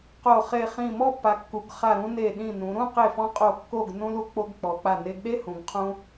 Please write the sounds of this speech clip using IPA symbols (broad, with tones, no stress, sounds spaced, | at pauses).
q o˧˩ χ e˧˩ χ ĩ˧˩ m ɔ˥˧ pː a˩˧ kː u˩˧ ɡ χ a˧˩ ɾ ũ˧ n e˧˩ ɗ ĩ˧˩ n ũ˩˧ ɾ ũ˥˧ q e˧˩ f ɔ̃˧ qʼ o˧˩ kː o˧˩ ɡ n ũ˧ l u˧ k͡p o˧ ɡ k͡p ɔ˩˧ k͡p a˧˩ n e˧ ɡ ɗ e˥ h ũ˩˧ ɡ qʰ ũ˧